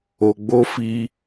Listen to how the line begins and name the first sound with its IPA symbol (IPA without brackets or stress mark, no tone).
o